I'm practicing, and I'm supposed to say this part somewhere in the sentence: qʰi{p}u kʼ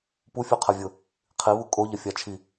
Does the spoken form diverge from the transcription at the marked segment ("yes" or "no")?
yes